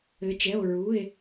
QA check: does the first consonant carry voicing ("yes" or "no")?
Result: no